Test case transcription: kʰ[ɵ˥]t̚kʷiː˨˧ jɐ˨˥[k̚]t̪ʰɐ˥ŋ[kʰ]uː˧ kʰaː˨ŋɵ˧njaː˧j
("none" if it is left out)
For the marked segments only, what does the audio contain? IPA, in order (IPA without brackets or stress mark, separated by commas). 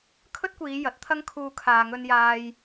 ɵ˥, t̚, kʰ